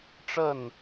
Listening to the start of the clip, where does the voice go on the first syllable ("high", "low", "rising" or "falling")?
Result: falling